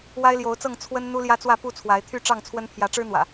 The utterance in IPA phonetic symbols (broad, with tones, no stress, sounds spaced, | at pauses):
w a˦ ɪ̯ l j o˨˦ ʊ̯ t͡s ɤ˥˨ ŋ t͡sʰ w ə˦ n n̪ u˦ l j ä˦ t͡s w ä˥˨ p u˥˨ t͡sʰ w a˨˦ ɪ̯ t̪ʰ y˥˨ ʈ͡ʂ ɑ˥˨ ŋ t͡sʰ w ə˦ n pʰ j ä˨˦ ʈ͡ʂ ɻ̩˦ n̪ w ä̰˨˩